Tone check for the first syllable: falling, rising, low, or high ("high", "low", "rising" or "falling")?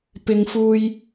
high